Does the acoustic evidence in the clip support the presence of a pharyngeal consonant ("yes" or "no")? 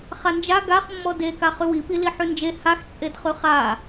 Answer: yes